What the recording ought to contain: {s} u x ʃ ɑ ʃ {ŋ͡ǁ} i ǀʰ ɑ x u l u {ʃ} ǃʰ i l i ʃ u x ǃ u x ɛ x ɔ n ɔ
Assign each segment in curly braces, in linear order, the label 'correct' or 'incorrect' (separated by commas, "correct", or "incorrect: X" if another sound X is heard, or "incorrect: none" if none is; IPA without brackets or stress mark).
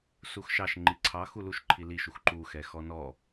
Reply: correct, incorrect: ŋ͡ǃ, correct